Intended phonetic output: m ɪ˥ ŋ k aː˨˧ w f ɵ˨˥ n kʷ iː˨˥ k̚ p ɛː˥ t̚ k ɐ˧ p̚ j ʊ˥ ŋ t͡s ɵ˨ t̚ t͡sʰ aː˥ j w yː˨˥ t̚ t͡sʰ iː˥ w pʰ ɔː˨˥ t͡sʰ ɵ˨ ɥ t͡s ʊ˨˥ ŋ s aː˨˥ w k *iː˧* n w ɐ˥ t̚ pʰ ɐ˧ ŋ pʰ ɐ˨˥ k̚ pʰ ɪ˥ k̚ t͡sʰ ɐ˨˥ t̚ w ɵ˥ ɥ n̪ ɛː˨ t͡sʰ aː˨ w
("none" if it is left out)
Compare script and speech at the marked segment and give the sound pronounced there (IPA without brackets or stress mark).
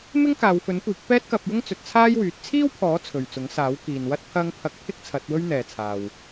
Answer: iː˨